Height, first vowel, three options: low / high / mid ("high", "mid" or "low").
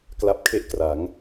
low